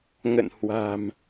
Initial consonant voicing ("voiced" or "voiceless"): voiced